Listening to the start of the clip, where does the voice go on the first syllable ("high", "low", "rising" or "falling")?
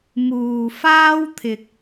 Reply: low